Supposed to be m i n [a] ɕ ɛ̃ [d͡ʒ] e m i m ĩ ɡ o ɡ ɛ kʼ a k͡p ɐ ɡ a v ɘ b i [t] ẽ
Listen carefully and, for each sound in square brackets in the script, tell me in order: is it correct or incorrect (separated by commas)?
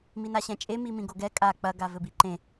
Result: correct, incorrect, incorrect